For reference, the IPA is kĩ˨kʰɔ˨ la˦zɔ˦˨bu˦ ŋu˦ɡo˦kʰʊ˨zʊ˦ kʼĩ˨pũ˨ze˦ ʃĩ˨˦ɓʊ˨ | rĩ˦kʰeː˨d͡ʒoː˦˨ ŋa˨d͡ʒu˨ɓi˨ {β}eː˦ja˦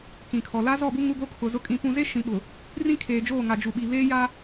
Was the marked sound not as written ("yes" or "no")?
no